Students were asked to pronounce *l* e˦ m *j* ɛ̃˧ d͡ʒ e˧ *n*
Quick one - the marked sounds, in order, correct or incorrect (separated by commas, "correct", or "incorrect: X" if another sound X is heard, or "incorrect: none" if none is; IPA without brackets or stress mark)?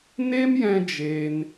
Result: incorrect: n, correct, correct